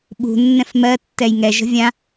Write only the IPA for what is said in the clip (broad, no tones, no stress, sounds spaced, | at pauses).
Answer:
ɓ ṳ nː ɛ̃ f m ɜ tː ɛ j ŋ ɛ ʒ ə̤ vʲ ã